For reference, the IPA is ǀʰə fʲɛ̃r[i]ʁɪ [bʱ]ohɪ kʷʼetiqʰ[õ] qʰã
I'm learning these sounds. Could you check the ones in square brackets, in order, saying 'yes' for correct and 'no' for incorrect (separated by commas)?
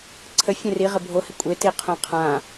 yes, yes, yes